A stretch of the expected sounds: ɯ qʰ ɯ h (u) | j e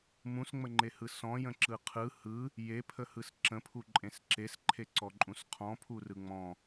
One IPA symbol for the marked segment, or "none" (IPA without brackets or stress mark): ɯ